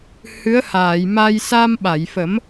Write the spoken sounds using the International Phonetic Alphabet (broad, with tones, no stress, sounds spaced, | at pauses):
h ɨ˧˥ ə̯ h aː˨˩˨ j m a˧ j s a˧ m ɓ a˨˩˨ j f ə˨˩˦ m